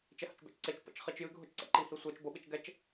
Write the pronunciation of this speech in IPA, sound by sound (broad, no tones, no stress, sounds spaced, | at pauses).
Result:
t͡ʃ ɛ h ə̰ t͡ʃ b ɛ̰ t͡ʃ ǀ e t͡ʃ p ə̰ t͡ʃ χ i t͡ʃ j ɨ ɡʱ ʊ t͡ʃ ǀ ɛ̰ ǃ i h i sʷ ɛ t͡ʃ b ʊ ɓ i t͡ʃ ɡ ɛ t͡ʃ